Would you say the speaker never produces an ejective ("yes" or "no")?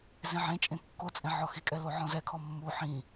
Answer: no